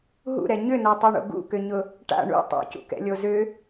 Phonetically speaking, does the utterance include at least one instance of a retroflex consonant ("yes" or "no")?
yes